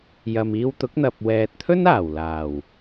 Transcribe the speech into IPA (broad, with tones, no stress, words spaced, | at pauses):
jɐ˨miː˧wt̪ʊ˨˥k̚n̪ɐ˨p̚ wɛː˨t̚t̪ʰɵ˥n aː˨˩wlaː˨˩w